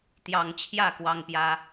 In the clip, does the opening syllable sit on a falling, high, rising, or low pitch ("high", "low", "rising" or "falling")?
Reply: low